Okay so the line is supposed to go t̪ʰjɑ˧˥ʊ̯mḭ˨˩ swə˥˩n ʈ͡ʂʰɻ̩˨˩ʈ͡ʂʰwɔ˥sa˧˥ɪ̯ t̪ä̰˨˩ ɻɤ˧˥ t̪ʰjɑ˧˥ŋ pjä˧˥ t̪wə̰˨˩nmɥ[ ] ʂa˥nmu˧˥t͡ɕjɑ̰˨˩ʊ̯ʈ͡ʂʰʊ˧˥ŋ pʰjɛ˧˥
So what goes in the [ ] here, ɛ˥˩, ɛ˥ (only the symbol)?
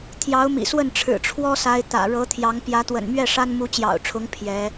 ɛ˥˩